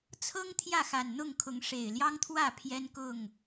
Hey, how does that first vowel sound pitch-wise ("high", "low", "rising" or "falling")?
high